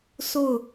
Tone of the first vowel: falling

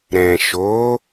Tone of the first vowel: low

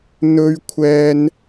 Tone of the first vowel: high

